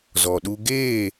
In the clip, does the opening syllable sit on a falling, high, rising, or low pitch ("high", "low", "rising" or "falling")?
low